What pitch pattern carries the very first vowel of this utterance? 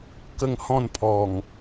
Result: falling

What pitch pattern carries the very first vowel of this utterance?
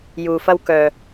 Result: low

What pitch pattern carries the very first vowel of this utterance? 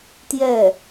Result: falling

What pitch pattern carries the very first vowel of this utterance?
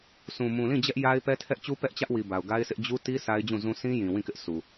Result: low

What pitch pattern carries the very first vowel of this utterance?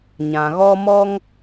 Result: low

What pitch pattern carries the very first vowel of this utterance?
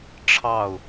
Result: falling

